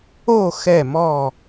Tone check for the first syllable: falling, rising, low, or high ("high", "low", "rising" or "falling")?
falling